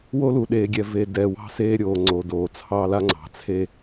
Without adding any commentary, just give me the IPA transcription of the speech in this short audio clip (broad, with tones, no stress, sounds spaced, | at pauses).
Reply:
w o˦ l u˨ ɗ eː˨ ɡʲ ɛ˨ v e˨ d ɛ˨ w ɑ̤˦ s eː˦ ɾʲ oː˨ ŋ͡ǀ o˨ d oː˨ t͡sʰ ɑː˦ l a˦ ŋ͡ǀ ɑ̤˨ t͡sʰ e˦